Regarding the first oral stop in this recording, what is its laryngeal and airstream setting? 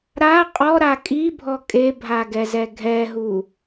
ejective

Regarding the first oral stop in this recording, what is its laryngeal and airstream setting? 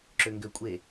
click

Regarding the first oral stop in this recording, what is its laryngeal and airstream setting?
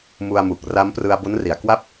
plain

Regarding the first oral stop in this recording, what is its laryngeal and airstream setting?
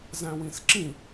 click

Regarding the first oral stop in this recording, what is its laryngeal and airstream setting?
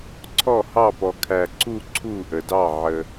click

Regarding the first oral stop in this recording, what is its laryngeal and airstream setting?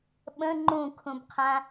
implosive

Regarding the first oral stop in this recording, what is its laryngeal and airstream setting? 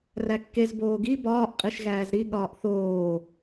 plain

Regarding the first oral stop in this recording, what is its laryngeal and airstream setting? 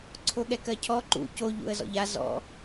click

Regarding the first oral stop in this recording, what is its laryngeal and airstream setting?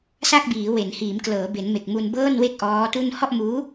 plain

